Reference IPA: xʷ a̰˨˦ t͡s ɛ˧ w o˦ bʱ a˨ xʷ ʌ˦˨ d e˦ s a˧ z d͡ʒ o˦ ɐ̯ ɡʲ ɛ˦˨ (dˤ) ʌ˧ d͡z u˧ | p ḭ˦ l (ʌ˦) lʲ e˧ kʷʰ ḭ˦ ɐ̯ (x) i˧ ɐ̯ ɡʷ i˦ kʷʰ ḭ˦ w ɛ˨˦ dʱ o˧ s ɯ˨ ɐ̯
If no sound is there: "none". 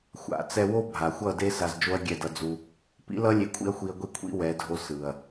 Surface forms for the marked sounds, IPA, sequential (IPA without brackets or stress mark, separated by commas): d, ʌ˦, xʷ